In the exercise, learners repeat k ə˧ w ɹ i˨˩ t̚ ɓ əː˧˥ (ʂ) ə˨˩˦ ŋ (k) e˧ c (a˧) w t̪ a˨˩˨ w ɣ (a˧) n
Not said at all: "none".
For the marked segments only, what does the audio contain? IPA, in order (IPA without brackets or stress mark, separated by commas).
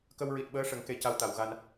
ʂ, k, a˧, a˧